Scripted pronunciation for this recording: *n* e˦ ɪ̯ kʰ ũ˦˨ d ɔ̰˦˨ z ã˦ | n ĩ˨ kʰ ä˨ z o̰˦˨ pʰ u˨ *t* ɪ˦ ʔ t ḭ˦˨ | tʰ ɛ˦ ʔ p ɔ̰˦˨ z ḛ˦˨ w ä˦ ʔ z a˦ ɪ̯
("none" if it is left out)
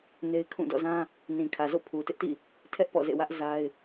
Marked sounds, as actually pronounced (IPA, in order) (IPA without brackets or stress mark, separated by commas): n, t